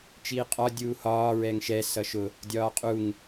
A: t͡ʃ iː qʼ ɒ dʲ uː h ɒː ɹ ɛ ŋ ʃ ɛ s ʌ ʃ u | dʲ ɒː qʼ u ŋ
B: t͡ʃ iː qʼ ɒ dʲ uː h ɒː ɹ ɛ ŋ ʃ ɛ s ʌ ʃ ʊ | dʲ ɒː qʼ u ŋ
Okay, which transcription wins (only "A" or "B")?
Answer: B